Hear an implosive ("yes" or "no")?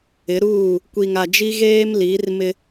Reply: no